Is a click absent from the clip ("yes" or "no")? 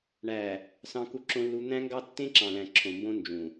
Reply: no